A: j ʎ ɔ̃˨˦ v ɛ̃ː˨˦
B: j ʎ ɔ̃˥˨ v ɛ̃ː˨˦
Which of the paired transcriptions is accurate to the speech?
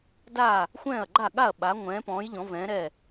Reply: A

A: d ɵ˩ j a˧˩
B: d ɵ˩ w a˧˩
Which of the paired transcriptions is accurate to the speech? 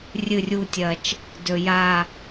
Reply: A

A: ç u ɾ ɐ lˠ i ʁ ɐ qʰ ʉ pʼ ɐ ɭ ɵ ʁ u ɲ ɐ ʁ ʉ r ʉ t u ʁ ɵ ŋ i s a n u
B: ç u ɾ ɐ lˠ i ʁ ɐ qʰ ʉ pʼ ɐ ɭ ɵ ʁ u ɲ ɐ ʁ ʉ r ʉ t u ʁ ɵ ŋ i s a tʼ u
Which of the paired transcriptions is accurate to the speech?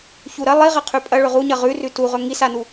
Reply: A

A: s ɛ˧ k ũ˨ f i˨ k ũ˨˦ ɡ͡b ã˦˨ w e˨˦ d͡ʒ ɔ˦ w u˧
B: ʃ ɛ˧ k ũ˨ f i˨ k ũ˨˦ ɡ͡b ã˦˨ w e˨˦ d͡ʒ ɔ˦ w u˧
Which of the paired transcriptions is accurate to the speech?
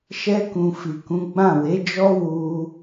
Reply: B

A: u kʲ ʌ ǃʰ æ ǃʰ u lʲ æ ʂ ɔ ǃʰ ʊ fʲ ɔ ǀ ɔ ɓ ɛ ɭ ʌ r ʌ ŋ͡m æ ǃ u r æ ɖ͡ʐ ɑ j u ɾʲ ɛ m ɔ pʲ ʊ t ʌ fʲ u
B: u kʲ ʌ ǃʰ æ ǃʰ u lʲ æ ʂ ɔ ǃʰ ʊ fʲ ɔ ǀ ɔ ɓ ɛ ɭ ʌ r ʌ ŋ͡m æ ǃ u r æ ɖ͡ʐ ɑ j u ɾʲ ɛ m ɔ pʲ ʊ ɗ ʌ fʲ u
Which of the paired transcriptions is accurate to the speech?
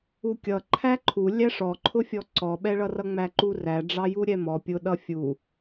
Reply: B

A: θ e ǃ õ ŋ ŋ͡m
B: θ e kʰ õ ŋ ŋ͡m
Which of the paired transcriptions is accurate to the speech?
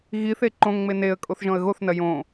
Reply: A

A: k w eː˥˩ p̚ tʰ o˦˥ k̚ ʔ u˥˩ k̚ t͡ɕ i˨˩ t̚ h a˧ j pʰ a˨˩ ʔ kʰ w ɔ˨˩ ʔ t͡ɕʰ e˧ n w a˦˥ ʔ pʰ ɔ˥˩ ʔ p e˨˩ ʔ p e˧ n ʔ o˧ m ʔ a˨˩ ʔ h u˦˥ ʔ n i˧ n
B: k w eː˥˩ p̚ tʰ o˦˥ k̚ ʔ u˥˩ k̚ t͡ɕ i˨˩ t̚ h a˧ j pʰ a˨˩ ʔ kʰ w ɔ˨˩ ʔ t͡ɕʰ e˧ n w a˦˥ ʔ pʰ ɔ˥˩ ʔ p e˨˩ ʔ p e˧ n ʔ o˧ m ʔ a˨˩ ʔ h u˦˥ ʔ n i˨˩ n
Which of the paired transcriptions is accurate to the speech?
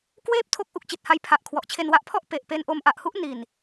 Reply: B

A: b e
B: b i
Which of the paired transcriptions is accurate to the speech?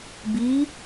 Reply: B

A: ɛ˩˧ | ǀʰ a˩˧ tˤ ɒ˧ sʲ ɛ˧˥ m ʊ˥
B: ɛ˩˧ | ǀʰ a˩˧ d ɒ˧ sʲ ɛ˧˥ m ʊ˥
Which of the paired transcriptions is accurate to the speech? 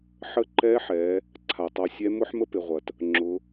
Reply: A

